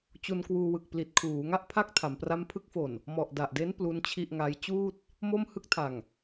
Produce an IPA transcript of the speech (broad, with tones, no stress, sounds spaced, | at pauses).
t͡ɕ u˧ n k w uː˧ w ɯ˨˩ k̚ p l i˨˩ t̚ kʰ uː˩˦ ŋ a˥˩ ʔ pʰ a˥˩ k̚ tʰ a˩˦ m p r a˦˥ m pʰ ɯ˦˥ k̚ f o˨˩ n | m ɔ˨˩ ʔ d a˨˩ ʔ d e˦˥ n p l u˦˥ n t͡ɕʰ i˥˩ ʔ ŋ a˦˥ j t͡ɕ uː˥˩ t̚ | m o˥˩ m h ɯ˥˩ k̚ tʰ a˨˩ ŋ